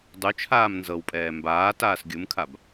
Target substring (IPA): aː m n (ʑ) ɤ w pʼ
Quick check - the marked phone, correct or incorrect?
incorrect